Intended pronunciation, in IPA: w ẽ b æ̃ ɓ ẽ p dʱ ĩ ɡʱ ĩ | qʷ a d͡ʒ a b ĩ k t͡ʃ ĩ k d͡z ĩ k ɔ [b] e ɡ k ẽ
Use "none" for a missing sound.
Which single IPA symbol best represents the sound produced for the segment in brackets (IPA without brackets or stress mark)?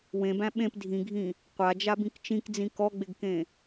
ɡ͡b